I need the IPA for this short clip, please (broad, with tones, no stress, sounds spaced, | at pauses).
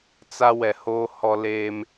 t͡s a˦ w ɛ˨ h oː˦ h ɔ˦ l eː˦ m